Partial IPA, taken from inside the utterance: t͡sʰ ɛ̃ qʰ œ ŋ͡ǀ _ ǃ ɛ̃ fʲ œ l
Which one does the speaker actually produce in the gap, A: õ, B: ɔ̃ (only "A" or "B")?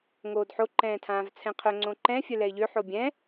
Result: A